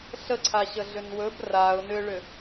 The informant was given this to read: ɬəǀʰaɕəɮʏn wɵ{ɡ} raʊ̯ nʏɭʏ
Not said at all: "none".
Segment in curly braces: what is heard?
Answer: b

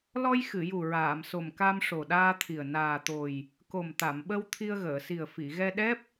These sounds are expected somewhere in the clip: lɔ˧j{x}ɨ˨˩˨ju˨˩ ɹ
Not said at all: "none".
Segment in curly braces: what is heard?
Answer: x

